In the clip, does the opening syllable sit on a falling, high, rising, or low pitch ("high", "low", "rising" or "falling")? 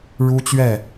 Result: high